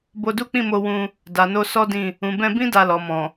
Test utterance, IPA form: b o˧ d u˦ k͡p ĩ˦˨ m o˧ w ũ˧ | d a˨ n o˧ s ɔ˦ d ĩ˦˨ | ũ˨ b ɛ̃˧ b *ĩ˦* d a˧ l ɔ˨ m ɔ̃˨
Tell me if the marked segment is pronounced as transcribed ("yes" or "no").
yes